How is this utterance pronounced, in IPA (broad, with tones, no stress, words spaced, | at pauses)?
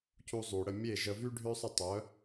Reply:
cu˧ zˤy˩ ɽə˥˩ mʲe˥˩ ʒə˧ vy˥ ɖʱø˥sˤə˥˩tˤœ˩˥